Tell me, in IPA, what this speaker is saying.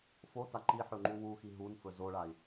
f o t a ǃ i ħ ɵ ŋ͡ǃ u w u x i ɦ u n f ɵ z o ɭ a i̯

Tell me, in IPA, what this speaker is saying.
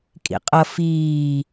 kʼ ḭ qʼ ʌ f iː

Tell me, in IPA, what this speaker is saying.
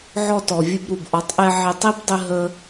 ʕ ɔ˧ t ɔ˨ vʲ ɘ˧ b ɾ u˨ b ʔ ɔ˨˦ tˤ ʔ ɛ˧ ʕ e˧ tˤ i˦ b dˤ ɘ˦ ɦ ə˦

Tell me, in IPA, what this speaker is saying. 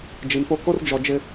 d͡ʒ i˨ m p o˦ k o˦ r d͡ʒ ɔ˨ d͡ʒ ɪ˦

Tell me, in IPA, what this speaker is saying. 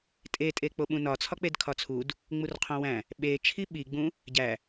tʼ e tʼ e k͡p o ɓ ũ n ɒ t͡sʰ ɒ k͡p e d kʰ ɒ t͡sʰ u d | ŋ͡m u r qʰ õ w æ̃ | ɓ e t͡ʃʰ i ɓ i ɡ͡b ũ | ɟ æ

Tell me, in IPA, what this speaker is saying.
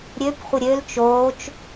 ɾʲ ø p χʷ ɪ ɾʲ ø l t͡ʃ oː t͡ʃ

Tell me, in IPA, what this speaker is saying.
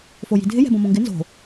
f o j i̤ dʱ ɪ j ɛ̤ b õ m õ ŋ ɡ ɪ n z o̤

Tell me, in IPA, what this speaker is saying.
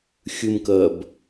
xʲ ɨ m k ɜ b

